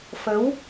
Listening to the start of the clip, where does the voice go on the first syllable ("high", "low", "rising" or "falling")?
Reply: rising